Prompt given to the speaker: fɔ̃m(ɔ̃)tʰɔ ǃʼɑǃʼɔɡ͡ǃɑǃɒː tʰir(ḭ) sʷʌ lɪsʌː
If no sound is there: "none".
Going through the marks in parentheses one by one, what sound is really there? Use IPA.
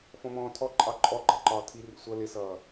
ɔ̃ː, ḭ

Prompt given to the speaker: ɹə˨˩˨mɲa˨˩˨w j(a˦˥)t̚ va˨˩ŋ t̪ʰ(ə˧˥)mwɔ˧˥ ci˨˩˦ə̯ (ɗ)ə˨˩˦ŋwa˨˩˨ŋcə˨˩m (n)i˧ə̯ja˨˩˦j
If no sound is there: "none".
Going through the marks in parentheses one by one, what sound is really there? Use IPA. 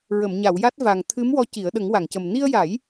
a˦˥, ɨ˧˥, ɗ, n

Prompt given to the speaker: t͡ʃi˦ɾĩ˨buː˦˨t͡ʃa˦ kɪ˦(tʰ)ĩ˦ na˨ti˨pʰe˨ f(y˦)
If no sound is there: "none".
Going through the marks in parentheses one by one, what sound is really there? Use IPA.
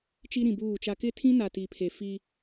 tʰ, i˦

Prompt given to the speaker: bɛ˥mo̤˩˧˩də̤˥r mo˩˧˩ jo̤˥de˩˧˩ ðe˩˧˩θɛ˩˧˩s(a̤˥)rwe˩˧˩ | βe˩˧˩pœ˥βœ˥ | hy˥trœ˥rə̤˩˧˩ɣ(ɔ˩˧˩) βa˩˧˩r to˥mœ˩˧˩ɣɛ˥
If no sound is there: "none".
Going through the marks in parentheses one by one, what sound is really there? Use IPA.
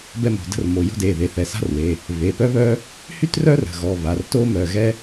a̤˥, ɔ˩˧˩

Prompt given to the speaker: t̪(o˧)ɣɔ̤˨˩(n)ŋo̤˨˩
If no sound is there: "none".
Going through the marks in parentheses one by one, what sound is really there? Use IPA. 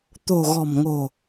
o̤˨˩, m

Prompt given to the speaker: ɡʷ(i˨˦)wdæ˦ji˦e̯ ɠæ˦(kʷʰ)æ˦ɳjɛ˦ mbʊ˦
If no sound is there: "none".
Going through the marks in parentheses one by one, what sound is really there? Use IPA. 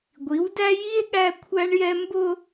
i˨˦, kʷʰ

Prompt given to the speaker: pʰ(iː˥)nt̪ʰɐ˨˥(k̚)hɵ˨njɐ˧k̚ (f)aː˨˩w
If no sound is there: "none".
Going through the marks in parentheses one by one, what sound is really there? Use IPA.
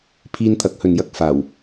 iː˧, k̚, f

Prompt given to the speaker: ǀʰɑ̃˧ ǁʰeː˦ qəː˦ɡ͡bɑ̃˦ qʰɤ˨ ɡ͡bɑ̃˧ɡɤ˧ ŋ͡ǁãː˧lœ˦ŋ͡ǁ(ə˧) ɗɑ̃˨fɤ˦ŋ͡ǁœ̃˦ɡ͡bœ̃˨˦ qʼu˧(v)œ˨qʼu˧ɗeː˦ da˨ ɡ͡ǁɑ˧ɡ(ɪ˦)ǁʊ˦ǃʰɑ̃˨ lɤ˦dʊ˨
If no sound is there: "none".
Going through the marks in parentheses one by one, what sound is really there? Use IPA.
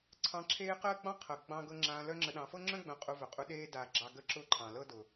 ə˧, v, ə˦

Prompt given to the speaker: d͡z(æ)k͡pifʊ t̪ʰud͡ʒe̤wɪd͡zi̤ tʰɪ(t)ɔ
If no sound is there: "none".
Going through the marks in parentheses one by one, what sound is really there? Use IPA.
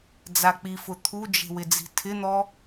a, n̪

